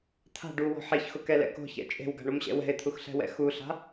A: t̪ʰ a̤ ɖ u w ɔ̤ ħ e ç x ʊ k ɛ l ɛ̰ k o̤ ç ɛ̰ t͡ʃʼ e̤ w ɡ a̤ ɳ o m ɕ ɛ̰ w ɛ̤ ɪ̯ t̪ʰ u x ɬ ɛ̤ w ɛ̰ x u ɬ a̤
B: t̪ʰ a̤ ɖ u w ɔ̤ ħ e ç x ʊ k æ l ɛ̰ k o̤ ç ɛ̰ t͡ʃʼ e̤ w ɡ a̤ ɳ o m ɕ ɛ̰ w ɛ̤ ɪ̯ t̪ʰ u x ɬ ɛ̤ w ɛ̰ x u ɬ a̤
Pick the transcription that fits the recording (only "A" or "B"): A